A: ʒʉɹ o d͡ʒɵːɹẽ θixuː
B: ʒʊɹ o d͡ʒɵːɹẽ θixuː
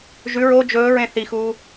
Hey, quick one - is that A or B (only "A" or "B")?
A